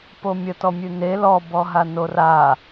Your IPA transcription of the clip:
pomʲə tɔmʲʉne lɔ bɔɦanora

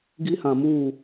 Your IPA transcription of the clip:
ɡi˦hã˨ muː˦˨

